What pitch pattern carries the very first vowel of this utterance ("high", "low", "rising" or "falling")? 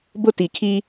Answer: high